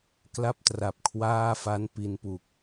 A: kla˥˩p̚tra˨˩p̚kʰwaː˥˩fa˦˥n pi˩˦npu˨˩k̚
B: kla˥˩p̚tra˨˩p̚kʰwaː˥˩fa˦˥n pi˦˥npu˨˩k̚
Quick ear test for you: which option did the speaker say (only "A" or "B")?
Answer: B